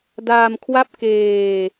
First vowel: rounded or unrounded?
unrounded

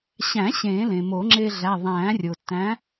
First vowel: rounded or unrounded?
unrounded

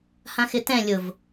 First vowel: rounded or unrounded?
unrounded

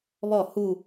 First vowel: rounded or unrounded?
rounded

